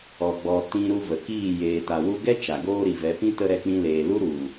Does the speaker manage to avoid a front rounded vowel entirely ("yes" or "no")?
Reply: yes